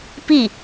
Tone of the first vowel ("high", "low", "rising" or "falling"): falling